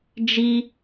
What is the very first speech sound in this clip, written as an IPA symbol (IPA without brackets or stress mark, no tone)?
d͡ʒ